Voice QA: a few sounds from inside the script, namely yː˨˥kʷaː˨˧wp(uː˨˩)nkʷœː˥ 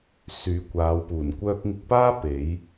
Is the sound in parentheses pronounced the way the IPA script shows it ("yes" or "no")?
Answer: yes